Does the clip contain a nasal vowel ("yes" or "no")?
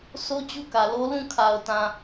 yes